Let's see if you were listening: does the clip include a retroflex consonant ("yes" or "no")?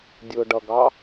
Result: yes